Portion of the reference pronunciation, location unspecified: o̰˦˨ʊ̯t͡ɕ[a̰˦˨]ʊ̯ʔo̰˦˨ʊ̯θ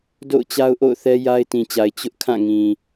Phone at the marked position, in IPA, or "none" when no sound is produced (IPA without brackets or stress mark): a˦